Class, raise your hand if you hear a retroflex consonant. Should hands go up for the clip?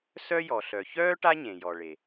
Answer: yes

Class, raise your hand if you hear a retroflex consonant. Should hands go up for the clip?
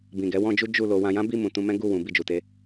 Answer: no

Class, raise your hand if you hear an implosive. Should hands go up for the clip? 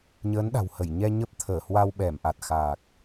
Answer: yes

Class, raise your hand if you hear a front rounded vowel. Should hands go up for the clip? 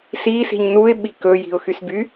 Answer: yes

